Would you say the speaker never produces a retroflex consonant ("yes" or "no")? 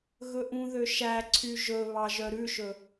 yes